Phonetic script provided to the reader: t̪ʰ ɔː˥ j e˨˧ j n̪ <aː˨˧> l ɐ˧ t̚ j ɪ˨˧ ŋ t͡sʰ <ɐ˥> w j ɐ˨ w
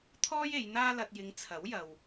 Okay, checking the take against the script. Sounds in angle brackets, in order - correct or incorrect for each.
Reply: incorrect: aː˥, incorrect: ɐ˨˥

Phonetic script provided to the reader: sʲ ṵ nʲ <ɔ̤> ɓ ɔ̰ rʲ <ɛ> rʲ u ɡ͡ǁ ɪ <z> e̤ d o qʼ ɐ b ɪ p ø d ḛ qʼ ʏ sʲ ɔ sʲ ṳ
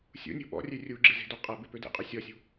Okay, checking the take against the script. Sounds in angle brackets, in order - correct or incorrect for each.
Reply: incorrect: o̤, incorrect: ø, correct

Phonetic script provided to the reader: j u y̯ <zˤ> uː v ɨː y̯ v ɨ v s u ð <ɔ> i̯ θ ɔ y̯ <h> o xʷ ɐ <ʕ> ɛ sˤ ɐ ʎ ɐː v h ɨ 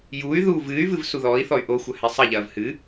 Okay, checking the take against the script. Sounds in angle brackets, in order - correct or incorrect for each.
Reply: incorrect: ð, incorrect: ɔː, incorrect: ʔ, incorrect: h

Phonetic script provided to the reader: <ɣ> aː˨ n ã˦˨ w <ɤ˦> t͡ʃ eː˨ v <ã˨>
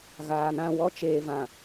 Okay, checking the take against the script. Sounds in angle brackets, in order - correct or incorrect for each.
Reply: correct, incorrect: ɔ˦, correct

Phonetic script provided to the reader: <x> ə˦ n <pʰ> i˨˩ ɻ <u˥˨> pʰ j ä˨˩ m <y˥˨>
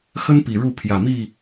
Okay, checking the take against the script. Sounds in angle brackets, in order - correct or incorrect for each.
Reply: correct, incorrect: p, correct, incorrect: i˥˨

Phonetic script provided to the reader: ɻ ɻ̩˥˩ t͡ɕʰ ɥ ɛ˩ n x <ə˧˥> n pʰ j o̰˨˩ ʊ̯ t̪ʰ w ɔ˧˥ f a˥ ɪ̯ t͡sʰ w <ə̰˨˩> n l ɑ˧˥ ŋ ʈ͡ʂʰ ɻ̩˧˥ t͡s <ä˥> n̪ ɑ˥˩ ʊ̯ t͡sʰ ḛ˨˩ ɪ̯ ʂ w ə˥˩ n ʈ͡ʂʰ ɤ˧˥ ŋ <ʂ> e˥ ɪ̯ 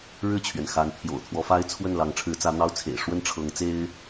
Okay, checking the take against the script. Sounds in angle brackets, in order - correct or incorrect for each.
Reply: incorrect: a˧˥, incorrect: ə˥˩, incorrect: ä˧˥, incorrect: t͡s

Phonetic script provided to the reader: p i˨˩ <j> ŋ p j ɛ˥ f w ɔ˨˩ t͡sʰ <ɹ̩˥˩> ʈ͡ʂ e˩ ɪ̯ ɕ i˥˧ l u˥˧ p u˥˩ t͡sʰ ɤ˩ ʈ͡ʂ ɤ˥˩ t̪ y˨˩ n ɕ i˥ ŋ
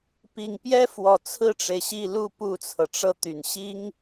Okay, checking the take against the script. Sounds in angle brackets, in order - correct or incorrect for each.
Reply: incorrect: none, correct

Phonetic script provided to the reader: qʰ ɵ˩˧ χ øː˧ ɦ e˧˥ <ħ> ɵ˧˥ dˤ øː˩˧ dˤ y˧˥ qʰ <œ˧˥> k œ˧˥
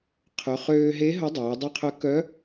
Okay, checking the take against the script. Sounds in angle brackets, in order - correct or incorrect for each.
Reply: incorrect: ɦ, correct

